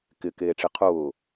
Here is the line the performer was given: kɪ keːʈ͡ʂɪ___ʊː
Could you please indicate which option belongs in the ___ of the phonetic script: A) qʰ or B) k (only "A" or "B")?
A